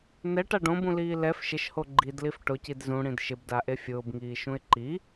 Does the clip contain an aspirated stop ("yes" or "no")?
no